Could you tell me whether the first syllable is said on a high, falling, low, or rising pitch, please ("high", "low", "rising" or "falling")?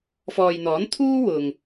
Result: low